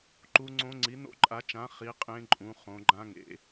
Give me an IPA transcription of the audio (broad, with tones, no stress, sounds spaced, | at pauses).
ǃ u˦˥ ŋ͡ǀ õ˦˥ ŋ͡ǀ i˨˦ n o̰˦˥ ǃʼ a˨˦ t͡ʃ ã˨˦ χ i˦˥ qʼ ẽ˦˥ ǃʼ ũ˨˦ χ õ˨˦ ɡ͡ǃ ã˦˥ ŋ ḛ˨˦